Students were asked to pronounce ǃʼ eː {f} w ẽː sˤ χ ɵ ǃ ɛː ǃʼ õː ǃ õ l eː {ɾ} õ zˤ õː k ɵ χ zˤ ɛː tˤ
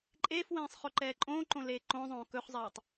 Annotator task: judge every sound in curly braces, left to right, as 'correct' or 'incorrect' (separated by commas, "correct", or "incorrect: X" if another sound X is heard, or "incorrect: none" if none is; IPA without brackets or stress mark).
correct, incorrect: ǃ